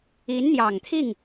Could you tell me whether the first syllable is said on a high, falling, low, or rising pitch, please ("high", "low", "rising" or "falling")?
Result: rising